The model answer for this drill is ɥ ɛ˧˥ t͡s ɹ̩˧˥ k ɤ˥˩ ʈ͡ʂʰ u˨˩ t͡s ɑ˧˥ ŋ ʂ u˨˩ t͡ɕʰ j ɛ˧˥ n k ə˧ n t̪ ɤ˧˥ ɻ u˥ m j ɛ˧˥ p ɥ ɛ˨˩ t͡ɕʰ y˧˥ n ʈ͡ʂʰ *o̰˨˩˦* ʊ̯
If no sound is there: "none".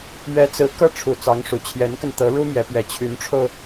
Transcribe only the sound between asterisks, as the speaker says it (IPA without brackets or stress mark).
o˧